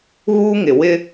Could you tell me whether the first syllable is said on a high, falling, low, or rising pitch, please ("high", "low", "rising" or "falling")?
high